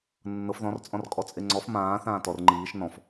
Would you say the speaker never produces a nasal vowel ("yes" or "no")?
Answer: no